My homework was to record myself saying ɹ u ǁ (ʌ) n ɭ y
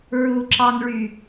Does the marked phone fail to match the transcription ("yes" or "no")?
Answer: yes